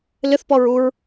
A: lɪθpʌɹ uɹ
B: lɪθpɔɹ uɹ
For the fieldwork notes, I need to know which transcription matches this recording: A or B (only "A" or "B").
B